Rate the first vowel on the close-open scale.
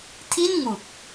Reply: close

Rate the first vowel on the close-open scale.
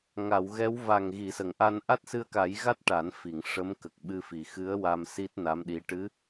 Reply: open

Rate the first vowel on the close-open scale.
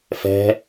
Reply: mid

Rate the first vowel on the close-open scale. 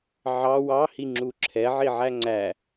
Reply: open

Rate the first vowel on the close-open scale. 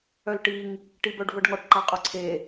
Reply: mid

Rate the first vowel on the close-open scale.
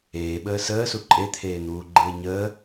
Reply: mid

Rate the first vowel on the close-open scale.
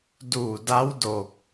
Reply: close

